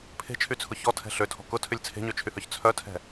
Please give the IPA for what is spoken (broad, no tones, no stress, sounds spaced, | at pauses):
pʰ e̤ t͡ʃʰ y t͡sʰ ʊ ç ɔ tʰ ɛ̤ ɬ ø tʰ ɔ̤ k ʊ tʰ ʏ lʲ t͡sʰ e̤ ɲ ø t͡ʃʰ y h œ ç t͡sʰ œ tʰ ɛ̤